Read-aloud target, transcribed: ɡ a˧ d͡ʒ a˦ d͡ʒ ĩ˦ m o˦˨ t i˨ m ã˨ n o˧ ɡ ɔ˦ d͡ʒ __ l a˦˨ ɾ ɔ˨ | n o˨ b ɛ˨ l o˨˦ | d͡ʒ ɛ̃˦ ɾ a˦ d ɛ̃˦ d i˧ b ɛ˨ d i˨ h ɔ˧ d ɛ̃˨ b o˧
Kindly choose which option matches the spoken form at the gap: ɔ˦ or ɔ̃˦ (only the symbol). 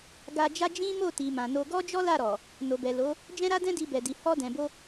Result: ɔ˦